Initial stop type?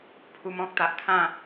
aspirated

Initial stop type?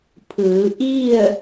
aspirated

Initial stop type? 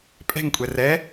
ejective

